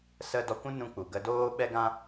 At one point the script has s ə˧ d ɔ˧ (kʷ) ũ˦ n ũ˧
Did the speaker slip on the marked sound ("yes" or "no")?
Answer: no